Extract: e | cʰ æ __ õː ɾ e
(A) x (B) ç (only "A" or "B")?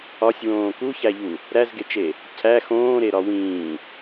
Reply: A